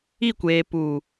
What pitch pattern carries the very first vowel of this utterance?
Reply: falling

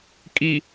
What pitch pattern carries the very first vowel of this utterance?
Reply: low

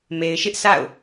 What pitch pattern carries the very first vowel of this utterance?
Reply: low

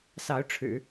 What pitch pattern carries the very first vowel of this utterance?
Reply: rising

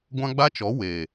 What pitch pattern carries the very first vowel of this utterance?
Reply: high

